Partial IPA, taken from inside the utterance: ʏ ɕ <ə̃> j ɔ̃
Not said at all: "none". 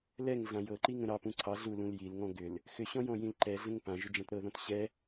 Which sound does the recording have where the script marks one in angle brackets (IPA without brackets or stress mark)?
ɔ̃